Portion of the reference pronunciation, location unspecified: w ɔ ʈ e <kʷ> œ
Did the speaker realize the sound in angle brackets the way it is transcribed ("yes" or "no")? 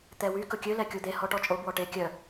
no